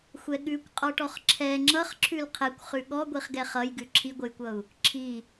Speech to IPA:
xʷ ɛ ɠ ʉ kʷ qʼ ɔ ʈ ɔ χ ǁʰ ɛ ŋ͡ǁ ʌ χ ǁʰ ʉ l qʰ ɛ kʷ χ ʉ ɠ ɔ ɡʷ i χ ɡ ɛ χ ʌ j ɡ ʉ ǁʰ i ɡʷ ɘ j kʷ ʌ u̯ | ǁʰ i

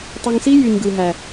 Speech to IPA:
tˤ ø˧ ŋ s i˦ j y˨ ɲ ɡ ɯ˨ ɦ æ˨

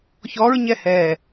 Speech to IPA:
ç ɔ ɹ ɲ ɛ h ɛː

